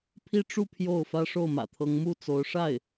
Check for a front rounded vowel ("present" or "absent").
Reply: absent